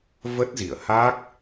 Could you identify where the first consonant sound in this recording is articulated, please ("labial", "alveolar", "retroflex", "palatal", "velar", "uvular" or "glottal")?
labial